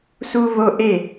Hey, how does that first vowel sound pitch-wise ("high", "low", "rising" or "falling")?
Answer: high